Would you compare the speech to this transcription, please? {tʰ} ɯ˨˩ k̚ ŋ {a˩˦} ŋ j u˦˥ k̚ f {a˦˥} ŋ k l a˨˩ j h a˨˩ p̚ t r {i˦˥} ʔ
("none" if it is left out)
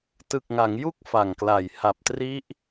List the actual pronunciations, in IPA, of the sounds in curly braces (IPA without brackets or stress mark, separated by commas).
t, a˩˦, a˨˩, i˦˥